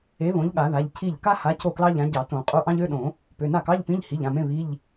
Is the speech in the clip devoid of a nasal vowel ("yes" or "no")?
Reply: no